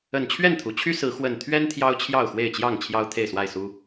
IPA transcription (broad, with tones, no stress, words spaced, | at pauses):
ə˨˩nt͡ɕʰɥɛ˥˨nt̪ʰu˩t͡ɕʰy˦ sɹ̩˨˦ xwə˨˩nt̪ʰɥɛ˦n t̪ʰjɑ˦ʊ̯t͡ɕʰjɑ˥˨ʊ̯xwe˥˨ɪ̯t͡ɕjɑ˥˨ŋ t͡ɕʰjɑ˦ʊ̯t̪ʰe˥˨ɪ̯swa˥˨ɪ̯su˦